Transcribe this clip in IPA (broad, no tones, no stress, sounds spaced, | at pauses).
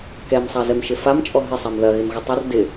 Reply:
k ɛ m sˤ a z ɛ m ʃ ɪ f a m t͡ʃʼ ɔ ɦ ɪ sˤ a m ð ɐ ɣ ɪ m ɣ ɪ tˤ ɪ r d ɪ